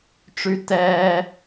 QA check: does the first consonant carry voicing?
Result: no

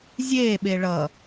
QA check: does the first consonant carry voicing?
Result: yes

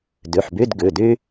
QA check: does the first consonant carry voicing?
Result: yes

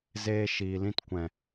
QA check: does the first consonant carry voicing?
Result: yes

